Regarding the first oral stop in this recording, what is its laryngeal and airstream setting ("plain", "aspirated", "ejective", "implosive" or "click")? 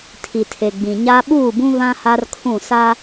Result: aspirated